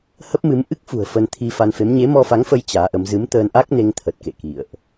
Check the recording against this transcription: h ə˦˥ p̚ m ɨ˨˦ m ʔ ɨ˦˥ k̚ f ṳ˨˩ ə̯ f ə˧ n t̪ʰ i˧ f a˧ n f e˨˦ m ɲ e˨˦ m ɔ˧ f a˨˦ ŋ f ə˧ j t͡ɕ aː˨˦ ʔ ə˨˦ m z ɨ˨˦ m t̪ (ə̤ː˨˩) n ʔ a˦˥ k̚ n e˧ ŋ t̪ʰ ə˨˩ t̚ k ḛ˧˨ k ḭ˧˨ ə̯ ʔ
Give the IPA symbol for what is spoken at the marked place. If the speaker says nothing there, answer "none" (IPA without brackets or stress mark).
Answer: əː˧